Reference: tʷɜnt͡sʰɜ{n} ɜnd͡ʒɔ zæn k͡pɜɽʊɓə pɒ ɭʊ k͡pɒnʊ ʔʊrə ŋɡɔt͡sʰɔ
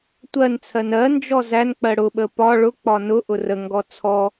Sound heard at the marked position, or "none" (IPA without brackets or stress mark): n